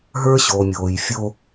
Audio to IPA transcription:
ɦ ə˞˦ ɕ o˨ mʲ oː˨ j fʲ o˦

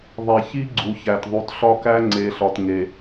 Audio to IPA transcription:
ðˤ e˨ ç i˦ ɡ͡ǀ u˨ ç æ˨ t ðˤ u˨ t ɬ ɒ˦ k æ˦ ŋ͡ǀ e˨ ɬ ɒ˨ t ŋ e˨

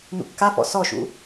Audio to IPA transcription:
n ṵ kː a f ɔ̰ s ɔ ʃ ṵ

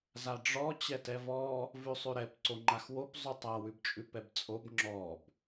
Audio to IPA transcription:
z a ɖ͡ʐ ɔ t͡ɕ ɛ t ɛ v ɔ | v ʉ sˤ ʉ ɾ ɛ p ǀ o ŋ͡ǃ a x w o p zˤ ʉ tˤ a w ʉ b t͡ʃʼ ʉ p ɛ b t͡sʼ o b ŋ͡ǁ ɔ b

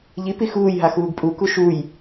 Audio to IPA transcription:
ʎ i p i x uː j ɦ a x uː ɡ pʼ u k u ʃ u j

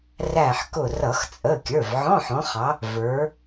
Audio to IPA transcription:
r æ˧˩ ħ k ʊ˧˩ r ʌ˧˩˧ x t͡sʼ ə˩˧˩ kʲ ə˞˩˧˩ v ʕ ɔ̃˧˥˧ ħ ɔ̃˨˦ χ ɑ˨˦ | v ə˞˨˦

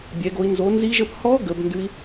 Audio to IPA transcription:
bʲ ɛ˩˥ ɡ o˩˥ i̯ n z o˩˥ n z i˦˥ ʒ ə˦˥ p h ɔ˦˥ ɡ ə˩˥ b n d ʉ˦˥ i̯

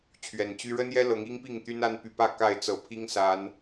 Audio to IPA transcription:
t͡ɕʰ ɥ ɛ˨˩ n t͡ɕ y˦ ɻ ə˦ n j ɛ˦ l ɤ˨˦ ŋ i˦ ŋ p i˥˨ ŋ t̪ y˦ n a˦ n p y˨˦ p ä˥˨ k a˥˨ ɪ̯ t͡s ɤ˨˩ pʰ i˦ ŋ s a˨˦ n

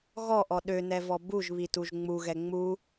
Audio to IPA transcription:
ɣ ɔ ʔ ɔ ɗ ø n ɛ v ɔ b u ʒ β i t u ʒ ŋ͡m u ɣ ɛ ŋ͡m u

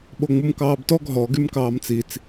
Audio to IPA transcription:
ɓ o ŋ͡m u m k ɑː b t ɔ ɡ ɦ ɔ ɡ y m k ɑː m t͡s i t͡s

